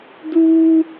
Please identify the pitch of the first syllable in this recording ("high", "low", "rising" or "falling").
high